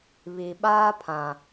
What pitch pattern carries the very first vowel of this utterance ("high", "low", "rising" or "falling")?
low